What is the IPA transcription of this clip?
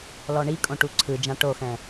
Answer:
l ɔ ɳ i kʼ õ ʈ u ǀʰ ɯ d͡ʒ ã ʈ o x ɛ̃

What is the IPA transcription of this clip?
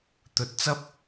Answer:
t̪ ɵ˧ t̚ t͡s ɐ˥ p̚

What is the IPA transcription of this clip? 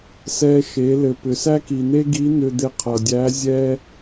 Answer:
s ɛ˧ ʃ e˩˧ l ɘ˩ p ʏ˩ s æ˥ k i˩ n̪ e˥ ɡ i˧˥ n̪ ʏ˧ d̪ e˧ qʰ ʌ˩ dʲ æ˧˥ zʲ ɛ˥

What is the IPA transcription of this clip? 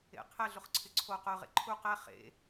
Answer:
ḛ qʰ ɛ ɮ ʊ χ ǀʰ ɪ ǀʰ o q ʊ ʁ ḛ ǃʰ u q ɛ χ ḛ

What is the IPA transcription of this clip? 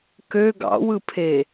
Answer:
k ø ɡ ɑ̰ w ɯ pʰ e

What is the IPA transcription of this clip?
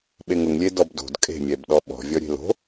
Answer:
ɓ e ŋ ʊ ŋ lʲ e d ɔ b d o̤ d kʼ e̤ mʲ ɛ b ɗ ɔ ɓ ɔ̤ vʲ ɔ ɾʲ e̤ l o̤

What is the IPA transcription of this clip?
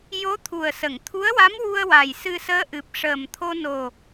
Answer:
j o˧˥ t̪ʰ u˨˩ ə̯ s ə˨˩˨ ŋ t̪ʰ u˧˥ ə̯ w a˧˥ m w u˧ ə̯ w a˨˩ j s ɨ˧ s əː˧˥ ʔ ɨ˨˩ p̚ ʂ əː˨˩ m t̪ʰ o˧ n o˨˩

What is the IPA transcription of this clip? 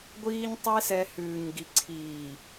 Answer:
ɡʷ iː˧ ɲ tˤ e˦ s ɛ˧ h ʉː˨ ɲ ɡ i˨ ǀʰ iː˨

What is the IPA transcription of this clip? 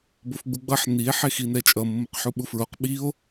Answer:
b o f ɡ͡b u ɡ͡b ʌ ħ n i e̯ ħ e x i n ɛ t͡ʃʼ ʌ mː o q ħ u ɓ u f ɹ o q ɓ i o̯

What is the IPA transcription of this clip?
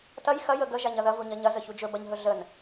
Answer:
t ɐ j x ɐ j ə ɡ ə ʒ a ɲ ɐ ð ɐ v u ɲ ɐ ɲ ɐ z ə ç u d͡ʒ ɵ b ɐ ɲ ɦ ɵ ɮ ə n

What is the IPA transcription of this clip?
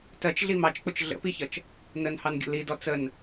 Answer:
t ɜ t͡ʃ ɮ i m ɑ t͡ʃ k͡p ʊ t͡ʃ ɮ ə̰ p i ç ʌ t͡ʃ | n ə n h ɑ n ɡʲ ə̰ l i d ɔ t͡s ə n

